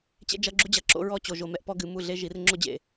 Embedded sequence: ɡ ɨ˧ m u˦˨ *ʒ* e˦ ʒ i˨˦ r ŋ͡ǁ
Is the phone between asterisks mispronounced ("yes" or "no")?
yes